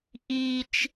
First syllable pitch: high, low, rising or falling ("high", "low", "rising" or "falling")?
high